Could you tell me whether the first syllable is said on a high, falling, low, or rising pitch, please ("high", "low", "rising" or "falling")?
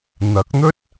rising